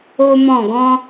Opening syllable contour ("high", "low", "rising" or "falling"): high